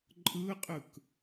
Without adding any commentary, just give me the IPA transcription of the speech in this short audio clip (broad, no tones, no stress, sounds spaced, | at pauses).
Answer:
ǃʼ ɯ qʼ ɯ k